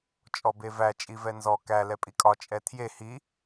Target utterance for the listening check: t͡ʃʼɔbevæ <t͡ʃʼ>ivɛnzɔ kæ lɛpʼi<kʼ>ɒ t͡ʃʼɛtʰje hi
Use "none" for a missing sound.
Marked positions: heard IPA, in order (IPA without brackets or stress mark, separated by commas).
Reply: t͡ʃʼ, kʼ